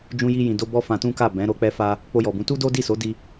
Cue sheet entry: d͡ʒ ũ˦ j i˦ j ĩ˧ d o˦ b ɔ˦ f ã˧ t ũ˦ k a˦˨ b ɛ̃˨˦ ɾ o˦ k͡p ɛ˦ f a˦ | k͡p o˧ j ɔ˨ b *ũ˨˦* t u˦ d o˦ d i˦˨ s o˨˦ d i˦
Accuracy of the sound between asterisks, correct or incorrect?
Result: correct